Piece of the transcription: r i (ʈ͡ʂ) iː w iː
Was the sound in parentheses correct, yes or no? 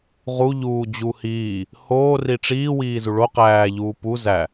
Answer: yes